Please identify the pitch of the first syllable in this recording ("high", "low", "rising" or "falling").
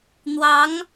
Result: rising